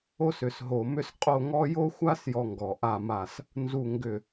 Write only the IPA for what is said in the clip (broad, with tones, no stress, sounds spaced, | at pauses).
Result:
o˥ s ʏ˧˩˧ s ɦ o˧˩˧ m ʏ˥ s qʼ o˥˨ ŋ ɔ˥ j o˥ xʷ a˥ s j ɔ˥ ŋ ɡ ɔ˧˩˧ ʔ a˥˨ m a˥˨ s | n z u˥˨ ŋ ɡ ʏ˥˨